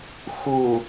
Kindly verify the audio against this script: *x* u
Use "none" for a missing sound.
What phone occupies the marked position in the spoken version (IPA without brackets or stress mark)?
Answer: x